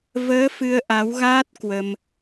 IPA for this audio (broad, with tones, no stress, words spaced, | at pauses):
vəː˨˦ fɨ˧ə̯ʔa˨˦wɣaː˦˥t̚ kwə˧m